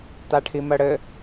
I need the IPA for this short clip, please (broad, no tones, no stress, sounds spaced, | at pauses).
t a ʈʰ i m ɜ ɽ ɘ